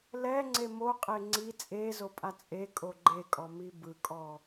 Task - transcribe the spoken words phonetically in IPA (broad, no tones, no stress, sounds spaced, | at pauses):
l ɛ ŋ͡ǀ e m o qʼ e ŋ͡ǀ i t͡sʼ e z o pʼ a t͡sʼ e kʼ o ɡ͡ǃ e kʼ ɔ m i b ɯ kʼ ɔ